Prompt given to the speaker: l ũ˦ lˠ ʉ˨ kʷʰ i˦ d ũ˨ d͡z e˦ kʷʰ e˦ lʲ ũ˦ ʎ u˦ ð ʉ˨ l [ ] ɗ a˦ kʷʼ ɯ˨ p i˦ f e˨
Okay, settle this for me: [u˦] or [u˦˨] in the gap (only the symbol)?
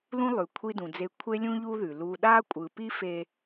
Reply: u˦